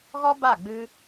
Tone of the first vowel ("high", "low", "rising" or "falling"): high